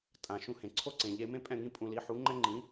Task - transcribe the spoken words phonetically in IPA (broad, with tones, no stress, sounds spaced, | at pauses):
tʼ ã˩ ʃ ũ˧ h ẽ˩ ǀʰ o˥ ǀ ẽ˩ ʎ e˧ m ẽ˥ pʼ ɛ̃˥˩ ŋ ĩ˥ pʼ ũ˧ l i˩˥ ħ u˩˥ ŋ͡ǃ ɛ˥ ŋ͡ǃ ĩ˩˥